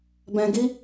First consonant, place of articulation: labial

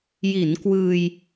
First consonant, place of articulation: palatal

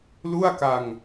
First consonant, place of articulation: alveolar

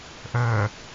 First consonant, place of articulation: glottal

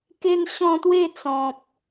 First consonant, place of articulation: velar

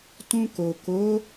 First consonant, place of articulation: alveolar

